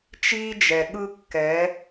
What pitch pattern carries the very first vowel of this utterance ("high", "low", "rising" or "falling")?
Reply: high